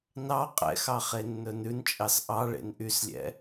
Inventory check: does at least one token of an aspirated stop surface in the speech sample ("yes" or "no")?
no